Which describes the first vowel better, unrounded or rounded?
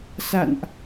unrounded